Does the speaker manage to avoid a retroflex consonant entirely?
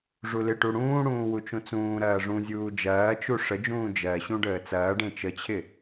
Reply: no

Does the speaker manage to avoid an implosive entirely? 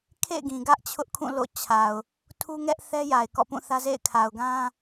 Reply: yes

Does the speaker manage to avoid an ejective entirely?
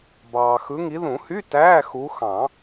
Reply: yes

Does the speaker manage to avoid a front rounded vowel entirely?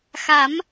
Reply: yes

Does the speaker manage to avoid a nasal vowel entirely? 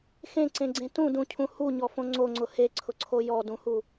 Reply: no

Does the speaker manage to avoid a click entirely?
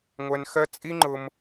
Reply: no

